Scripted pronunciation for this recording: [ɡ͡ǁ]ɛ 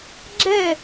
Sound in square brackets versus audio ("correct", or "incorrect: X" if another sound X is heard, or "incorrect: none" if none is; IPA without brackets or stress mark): correct